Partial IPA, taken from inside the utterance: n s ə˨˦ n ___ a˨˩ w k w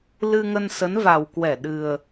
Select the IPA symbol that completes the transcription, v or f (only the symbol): v